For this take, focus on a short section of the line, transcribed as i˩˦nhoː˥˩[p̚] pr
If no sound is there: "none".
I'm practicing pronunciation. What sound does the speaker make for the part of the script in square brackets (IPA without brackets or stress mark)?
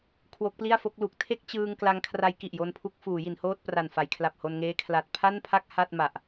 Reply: t̚